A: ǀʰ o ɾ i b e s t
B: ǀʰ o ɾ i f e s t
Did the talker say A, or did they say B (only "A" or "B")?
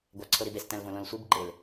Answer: A